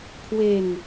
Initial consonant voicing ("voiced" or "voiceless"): voiceless